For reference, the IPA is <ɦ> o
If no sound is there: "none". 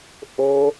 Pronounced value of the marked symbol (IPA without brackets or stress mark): ʔ